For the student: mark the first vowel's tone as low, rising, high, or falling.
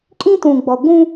high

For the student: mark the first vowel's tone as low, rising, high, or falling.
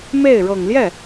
falling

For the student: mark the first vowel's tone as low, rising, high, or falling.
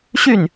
falling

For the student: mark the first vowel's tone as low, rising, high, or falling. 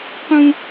high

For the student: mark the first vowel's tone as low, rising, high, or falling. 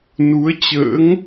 rising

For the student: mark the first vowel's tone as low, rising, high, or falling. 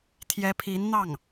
rising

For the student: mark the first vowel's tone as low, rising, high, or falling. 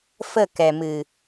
falling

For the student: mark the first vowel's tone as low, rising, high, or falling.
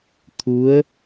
rising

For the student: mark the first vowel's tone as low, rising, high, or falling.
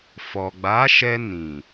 low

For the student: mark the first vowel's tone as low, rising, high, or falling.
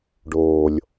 low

